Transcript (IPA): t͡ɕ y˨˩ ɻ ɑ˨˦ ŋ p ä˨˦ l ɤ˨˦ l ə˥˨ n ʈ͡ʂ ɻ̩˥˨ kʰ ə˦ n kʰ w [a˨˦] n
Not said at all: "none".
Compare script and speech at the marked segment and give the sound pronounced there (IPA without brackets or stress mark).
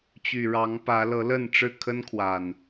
a˨˩